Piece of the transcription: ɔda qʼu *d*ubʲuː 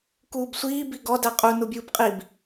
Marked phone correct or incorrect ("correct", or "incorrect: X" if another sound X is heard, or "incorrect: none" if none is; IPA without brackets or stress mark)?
incorrect: n